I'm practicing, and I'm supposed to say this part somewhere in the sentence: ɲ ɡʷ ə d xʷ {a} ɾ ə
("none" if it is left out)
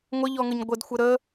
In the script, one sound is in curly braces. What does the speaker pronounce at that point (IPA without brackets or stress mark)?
ə